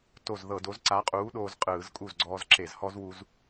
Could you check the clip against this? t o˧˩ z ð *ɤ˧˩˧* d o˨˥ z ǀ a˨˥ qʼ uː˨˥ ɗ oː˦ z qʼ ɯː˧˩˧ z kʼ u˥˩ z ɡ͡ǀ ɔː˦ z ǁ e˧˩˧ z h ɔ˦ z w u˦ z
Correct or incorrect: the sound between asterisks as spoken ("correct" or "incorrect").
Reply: correct